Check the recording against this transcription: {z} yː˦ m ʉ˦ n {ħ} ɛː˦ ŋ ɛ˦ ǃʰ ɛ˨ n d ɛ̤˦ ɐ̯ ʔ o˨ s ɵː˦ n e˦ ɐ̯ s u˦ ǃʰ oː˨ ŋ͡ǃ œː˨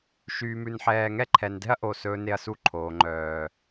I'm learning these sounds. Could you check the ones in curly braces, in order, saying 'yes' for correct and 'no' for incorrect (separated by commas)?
no, yes